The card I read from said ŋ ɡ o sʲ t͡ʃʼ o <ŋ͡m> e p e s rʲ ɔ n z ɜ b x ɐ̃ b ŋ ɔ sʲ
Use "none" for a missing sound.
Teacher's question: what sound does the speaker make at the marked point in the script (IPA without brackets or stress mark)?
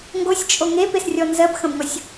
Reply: ŋ